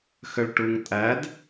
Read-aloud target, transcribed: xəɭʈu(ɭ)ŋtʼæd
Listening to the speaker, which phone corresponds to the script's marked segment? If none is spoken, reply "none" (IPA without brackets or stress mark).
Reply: none